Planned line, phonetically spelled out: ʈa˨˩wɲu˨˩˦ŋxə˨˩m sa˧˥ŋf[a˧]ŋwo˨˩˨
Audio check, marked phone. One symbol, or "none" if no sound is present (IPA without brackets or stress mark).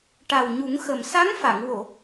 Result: a˨˩˨